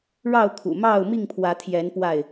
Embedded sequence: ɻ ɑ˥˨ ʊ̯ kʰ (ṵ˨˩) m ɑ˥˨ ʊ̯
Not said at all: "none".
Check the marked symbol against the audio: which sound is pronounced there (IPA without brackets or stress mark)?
ṵ˨˩